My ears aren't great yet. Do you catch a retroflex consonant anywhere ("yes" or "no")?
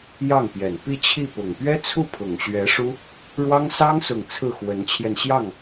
yes